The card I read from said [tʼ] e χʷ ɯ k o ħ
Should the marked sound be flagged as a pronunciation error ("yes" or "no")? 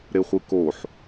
yes